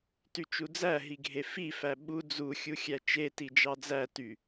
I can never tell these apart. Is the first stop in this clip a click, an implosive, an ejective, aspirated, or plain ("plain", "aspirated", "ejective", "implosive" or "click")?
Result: plain